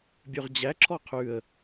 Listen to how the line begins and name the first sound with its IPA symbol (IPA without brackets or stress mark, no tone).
bʲ